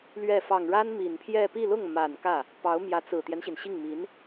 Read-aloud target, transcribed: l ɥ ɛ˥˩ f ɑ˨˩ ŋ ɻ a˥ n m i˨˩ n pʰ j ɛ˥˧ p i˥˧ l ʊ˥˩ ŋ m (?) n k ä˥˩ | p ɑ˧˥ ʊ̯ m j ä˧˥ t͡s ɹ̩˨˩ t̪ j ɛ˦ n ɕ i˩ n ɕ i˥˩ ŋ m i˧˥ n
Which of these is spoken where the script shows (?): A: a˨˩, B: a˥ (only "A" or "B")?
A